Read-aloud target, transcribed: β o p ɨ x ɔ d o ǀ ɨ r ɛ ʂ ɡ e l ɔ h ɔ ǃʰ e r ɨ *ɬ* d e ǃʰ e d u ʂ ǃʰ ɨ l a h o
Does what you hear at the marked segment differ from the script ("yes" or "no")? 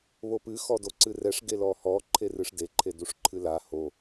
yes